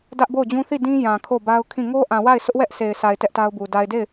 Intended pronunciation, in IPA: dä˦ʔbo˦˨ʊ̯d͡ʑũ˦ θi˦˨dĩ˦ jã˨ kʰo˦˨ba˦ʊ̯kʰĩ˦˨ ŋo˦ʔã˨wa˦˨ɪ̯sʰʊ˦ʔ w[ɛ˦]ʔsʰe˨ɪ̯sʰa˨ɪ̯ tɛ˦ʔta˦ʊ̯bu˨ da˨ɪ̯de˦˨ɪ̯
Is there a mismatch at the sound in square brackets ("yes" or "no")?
no